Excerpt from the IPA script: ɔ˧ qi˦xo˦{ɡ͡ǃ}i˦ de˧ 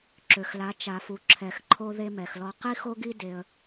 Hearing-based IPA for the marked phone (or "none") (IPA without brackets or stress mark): ɡ